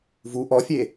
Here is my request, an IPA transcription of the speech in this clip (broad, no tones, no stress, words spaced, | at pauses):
vu ʔɔfʲe